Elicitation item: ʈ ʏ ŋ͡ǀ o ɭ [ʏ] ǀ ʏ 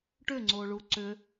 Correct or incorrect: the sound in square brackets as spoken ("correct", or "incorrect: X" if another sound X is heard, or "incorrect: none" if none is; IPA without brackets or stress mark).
incorrect: u